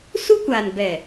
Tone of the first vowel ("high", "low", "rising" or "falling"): high